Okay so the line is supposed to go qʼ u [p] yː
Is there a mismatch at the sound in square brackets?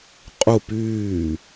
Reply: no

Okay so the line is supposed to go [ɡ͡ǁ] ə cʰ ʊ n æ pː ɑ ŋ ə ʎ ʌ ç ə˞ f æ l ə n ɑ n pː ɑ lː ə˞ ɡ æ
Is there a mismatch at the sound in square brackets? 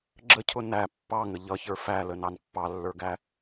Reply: no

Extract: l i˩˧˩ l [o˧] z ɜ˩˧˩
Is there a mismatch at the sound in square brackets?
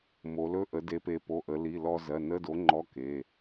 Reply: yes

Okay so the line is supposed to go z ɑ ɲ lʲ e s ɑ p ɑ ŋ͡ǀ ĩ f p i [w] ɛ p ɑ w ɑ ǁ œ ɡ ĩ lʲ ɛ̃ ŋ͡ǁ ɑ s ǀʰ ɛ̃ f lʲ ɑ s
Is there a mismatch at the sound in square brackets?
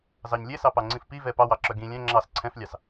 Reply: yes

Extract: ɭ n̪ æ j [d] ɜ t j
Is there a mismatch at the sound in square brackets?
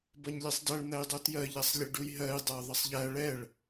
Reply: yes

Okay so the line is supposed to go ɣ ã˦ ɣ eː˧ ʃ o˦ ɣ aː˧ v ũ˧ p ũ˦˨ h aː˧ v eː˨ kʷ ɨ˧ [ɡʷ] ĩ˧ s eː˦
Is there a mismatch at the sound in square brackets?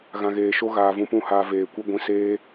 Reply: no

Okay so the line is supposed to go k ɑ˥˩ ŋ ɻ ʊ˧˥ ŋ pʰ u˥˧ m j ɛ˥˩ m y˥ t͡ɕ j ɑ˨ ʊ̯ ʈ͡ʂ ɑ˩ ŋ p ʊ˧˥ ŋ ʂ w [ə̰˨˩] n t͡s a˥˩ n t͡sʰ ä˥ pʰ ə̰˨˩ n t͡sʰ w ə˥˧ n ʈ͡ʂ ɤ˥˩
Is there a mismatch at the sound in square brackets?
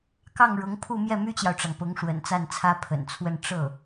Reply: no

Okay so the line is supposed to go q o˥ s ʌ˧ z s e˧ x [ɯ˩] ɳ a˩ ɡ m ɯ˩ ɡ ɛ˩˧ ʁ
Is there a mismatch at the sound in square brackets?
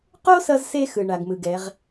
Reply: no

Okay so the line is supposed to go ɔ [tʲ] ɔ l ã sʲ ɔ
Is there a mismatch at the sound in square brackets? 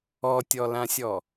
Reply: no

